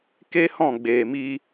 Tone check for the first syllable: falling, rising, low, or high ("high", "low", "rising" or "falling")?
high